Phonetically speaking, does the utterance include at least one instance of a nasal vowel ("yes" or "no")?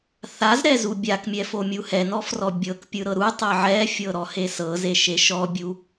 no